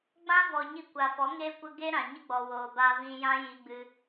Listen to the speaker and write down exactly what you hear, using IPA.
ɡ͡b ã˦ v ɔ˨ ɲ i˧ kʷ a˨ f ɔ˨˦ ŋ eː˧ kʷ ə˧ ɡ eː˦ ɾ ã˨ ɲ ə˦ ɡ͡b ɔ˨ w oː˨ b a˧ v ĩ˧ j ã˦ j i˧ ɡ͡b ɨ˧

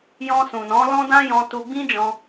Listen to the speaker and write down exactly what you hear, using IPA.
j ɔ̃˧ s ũ˨ n ɔ̃˨˦ l ɔ̃˦ d ã˦ j ɔ̃˧ t u˧ ɡ͡b ĩ˦ d͡ʒ ɔ̃˧

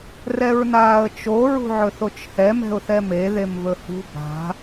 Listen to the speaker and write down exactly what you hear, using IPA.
r ɛ ɹ n aː ə̯ t͡ʃ o ɹ ṳ ʕ ɵ θ o t͡ʃ h ɛ m ɛ̤ ʊ̯ θ ɛ m e ð e m v ɵ h ṳ b a̤

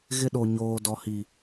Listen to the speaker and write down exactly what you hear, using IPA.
ɣ ɪ˦ ɗ o˨ ɲ oː˨ d ɔ˨ h i˨

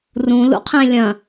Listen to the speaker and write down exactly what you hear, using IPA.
r ũ l ṵ qʰ ẽ lʲ ɐ̃

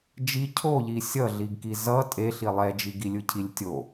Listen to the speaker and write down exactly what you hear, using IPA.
d͡ʒ i cʰ o ʎ i sʲ ʌ ɮ i ɡ k i z ʌ tʼ e ɬ i lˠ ɛ d͡ʒ i ɡ i lʲ ɯ cʰ i lʲ tʲ o

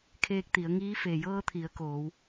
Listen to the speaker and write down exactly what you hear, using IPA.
kʰ eː˧ k̚ t̪ i˩˧ ə̯ ŋ iː˧˥ f e˩ j ɤː˧ t̪ʰ i˩˧ ə̯ k oː˩˧ w

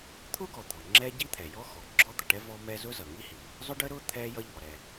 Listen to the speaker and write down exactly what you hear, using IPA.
t̪ʰ ʊ˥ ɡ ɔ˩ d̪ ɔ˩ ŋ͡ǁ ɛ˥ ɟ i˥ t̪ʰ ɛ˩ j ɔ˥ x ɔ˩ ɡ͡ǁ ɔ˥ d̪ ʌ˩ ʈ ɛ˥ v ɔ˥ m ɛ˥ z ʊ˥ z ʌ˩ ŋ i˥ h i˩ | zˤ ʊ˥ ɖ ə˥ ɾ ʊ˥ t̪ʰ ɛ˥ j ʌ˥ ʎ ɔ˩ ɾ ɛ˩

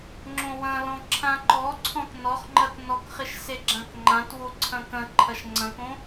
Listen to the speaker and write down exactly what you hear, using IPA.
ŋ͡ǁ õ w ɐ̃ l ɔ̃ ǁʰ ã ǃ ɔ ǀʰ ɔ̃ t n ɔ χ ŋ͡ǃ ɐ t n ɔ k χ ɪ ʃ s e ɡ͡ǁ ã k ŋ͡ǃ ã t w o ǀʰ ɐ̃ k ɐ̃ ǃʰ ɐ ʃ ŋ͡ǀ ɐ̃ k õ

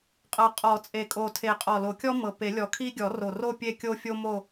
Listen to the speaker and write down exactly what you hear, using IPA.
qʼ ɤ˨˩ qʼ ɔ˨˩˦ t͡sʼ e˨˩ kʼ o˨˩ tʰ e˨˩ qʼ ɔ˨˩ l o˨˩˦ kʲ ɔ˥ m ɤ˨˩ p e˨˩˦ lʲ ɔ˨˩ kʰ i˥ ɡʲ ɔ˨˩˦ r o˨˩ r o˥˧ pʲ e˥˧ kʲ o˥ fʲ o˥ m o˥˧

